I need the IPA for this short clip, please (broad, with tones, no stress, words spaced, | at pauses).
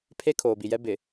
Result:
pʰe˦ kʰoː˨bi˨jɛ˦ bɪ˨